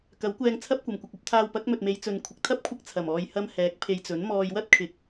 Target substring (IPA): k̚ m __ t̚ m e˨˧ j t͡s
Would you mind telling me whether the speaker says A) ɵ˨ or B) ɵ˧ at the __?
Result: A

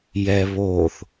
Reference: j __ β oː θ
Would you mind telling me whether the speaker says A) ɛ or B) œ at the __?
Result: A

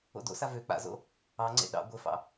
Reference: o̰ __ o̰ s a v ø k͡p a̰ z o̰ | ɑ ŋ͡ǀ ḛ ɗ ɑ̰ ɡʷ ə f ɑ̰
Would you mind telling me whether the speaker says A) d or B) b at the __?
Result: A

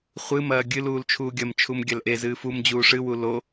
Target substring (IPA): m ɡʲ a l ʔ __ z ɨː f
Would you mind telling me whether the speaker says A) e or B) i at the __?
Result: A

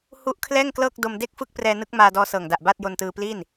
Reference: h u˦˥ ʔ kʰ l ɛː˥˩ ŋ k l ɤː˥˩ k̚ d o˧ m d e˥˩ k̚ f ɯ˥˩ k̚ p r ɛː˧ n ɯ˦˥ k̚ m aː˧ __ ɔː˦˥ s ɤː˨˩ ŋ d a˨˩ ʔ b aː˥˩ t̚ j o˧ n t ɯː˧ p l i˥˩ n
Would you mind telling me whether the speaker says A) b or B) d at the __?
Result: B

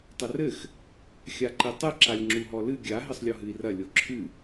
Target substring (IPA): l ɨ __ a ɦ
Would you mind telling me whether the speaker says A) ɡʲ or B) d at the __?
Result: A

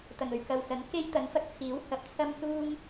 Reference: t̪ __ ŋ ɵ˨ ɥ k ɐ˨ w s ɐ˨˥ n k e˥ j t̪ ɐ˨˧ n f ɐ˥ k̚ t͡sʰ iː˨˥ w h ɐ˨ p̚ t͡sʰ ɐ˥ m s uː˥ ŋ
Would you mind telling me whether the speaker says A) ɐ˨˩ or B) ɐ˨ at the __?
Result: A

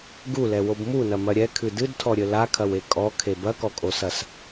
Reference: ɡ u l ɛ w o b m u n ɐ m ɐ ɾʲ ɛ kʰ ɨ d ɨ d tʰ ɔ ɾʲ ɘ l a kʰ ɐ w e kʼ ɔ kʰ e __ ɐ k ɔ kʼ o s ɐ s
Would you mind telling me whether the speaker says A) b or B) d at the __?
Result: A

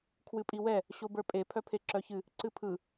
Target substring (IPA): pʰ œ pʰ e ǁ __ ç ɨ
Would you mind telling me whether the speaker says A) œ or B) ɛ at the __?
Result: A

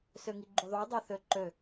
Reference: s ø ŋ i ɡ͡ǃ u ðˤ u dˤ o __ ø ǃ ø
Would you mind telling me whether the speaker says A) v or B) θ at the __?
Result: B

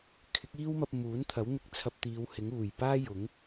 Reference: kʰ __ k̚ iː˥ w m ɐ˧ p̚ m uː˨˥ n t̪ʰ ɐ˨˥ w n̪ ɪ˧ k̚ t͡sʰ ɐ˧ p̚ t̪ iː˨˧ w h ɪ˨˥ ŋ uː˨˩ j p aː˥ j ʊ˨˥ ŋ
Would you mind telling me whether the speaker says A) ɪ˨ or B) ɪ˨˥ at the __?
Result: B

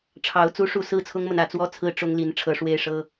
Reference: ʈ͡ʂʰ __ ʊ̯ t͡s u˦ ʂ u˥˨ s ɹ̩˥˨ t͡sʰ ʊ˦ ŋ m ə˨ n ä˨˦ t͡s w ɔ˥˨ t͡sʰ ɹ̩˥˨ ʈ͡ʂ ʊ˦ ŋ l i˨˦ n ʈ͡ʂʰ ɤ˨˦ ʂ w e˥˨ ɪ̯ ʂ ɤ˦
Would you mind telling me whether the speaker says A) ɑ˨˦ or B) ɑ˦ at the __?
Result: A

